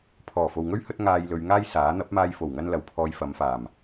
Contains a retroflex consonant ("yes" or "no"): no